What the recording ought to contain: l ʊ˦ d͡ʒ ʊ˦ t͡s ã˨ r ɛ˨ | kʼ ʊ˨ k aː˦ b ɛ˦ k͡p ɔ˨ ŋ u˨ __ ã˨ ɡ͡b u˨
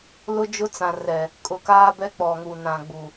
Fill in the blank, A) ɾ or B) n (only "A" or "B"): B